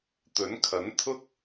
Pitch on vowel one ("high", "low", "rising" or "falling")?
rising